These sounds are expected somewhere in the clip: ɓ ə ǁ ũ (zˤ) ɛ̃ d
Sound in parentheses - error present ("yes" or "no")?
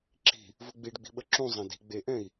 no